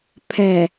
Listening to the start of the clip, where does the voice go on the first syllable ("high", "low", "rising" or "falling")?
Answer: low